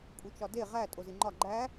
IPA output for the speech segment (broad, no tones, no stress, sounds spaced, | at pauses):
kʼ u t͡ʃ ɒ d e ʁ æ tʼ o z i ŋ͡ǃ ɒ ɡ͡ǃ æ